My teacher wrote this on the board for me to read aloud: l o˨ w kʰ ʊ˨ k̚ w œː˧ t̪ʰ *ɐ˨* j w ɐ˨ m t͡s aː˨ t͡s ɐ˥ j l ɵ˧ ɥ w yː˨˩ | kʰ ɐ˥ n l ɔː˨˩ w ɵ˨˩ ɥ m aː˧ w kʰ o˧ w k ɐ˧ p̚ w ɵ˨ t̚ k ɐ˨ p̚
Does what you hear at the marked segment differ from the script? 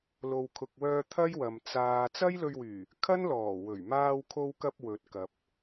yes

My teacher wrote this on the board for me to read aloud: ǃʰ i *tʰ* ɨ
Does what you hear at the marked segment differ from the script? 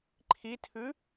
no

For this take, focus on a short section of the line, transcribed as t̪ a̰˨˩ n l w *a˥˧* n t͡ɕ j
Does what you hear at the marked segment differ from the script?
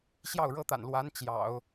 yes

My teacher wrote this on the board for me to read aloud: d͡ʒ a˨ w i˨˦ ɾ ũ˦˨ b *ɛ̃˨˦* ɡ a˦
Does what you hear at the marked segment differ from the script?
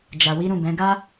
no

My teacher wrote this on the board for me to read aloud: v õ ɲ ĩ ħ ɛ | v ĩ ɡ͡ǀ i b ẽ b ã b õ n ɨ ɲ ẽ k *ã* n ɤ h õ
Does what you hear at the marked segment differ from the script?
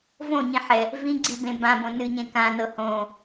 no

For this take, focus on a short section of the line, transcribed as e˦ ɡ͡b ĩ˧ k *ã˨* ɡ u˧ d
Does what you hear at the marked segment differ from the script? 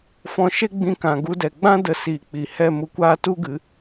no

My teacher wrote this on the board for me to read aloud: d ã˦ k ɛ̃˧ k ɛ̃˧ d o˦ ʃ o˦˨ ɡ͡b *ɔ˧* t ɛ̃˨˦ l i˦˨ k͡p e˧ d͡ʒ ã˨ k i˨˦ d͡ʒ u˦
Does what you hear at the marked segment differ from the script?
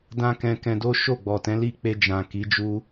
yes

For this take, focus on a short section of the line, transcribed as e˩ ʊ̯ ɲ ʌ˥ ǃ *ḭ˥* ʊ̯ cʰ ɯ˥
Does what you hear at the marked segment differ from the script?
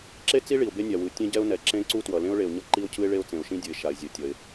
yes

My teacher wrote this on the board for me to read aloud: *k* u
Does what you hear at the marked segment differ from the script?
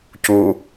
yes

